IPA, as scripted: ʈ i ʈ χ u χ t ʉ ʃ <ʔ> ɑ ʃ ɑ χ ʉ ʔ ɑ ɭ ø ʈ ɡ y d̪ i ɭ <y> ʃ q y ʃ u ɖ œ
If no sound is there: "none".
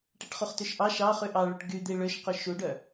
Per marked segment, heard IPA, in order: ʔ, ø

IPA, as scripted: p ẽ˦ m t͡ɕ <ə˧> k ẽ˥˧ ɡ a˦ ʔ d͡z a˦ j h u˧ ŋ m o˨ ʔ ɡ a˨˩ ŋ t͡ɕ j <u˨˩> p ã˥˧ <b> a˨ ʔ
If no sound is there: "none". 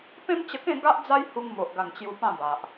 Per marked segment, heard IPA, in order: ə˧, u˧, b

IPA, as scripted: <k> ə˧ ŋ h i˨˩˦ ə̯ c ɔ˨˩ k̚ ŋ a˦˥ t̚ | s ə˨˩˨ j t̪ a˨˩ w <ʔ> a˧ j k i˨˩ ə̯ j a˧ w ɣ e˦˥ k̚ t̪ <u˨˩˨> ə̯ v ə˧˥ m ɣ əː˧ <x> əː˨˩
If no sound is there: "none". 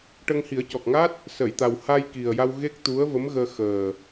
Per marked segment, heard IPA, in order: ʈ, h, u˧˥, x

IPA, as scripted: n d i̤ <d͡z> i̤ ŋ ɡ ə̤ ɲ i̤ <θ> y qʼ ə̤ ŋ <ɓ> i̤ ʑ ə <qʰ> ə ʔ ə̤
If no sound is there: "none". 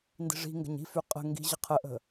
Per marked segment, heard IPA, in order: ʐ, f, ɡ, qʰ

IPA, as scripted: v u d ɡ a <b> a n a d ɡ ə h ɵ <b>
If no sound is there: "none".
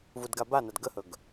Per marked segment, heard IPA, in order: b, ɡ

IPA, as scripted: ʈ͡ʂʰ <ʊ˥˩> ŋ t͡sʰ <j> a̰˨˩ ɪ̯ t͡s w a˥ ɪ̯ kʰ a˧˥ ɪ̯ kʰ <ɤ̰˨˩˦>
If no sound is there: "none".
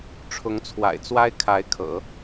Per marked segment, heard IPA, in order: ʊ˧˥, w, ɤ̰˨˩˦

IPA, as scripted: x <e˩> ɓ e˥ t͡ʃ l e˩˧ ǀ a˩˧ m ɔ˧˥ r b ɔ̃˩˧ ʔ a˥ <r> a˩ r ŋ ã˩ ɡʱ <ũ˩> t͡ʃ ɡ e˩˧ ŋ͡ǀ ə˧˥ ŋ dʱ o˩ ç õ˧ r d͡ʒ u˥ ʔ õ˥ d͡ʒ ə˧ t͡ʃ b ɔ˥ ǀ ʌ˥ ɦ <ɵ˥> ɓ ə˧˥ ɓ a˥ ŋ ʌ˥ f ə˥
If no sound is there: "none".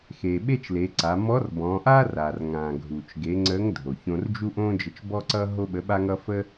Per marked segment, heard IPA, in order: e˩, r, u˩, o˥

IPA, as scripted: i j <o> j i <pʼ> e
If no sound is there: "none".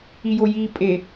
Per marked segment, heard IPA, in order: o, pʼ

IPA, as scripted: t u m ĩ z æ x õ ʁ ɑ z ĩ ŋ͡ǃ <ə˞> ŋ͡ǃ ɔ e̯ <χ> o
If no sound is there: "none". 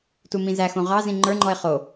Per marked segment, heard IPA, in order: ə˞, χ

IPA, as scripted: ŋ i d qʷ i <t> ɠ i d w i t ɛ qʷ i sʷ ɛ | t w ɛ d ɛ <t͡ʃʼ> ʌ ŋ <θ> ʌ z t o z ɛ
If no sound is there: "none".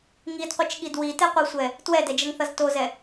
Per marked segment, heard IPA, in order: t͡ʃ, d͡ʒ, θ

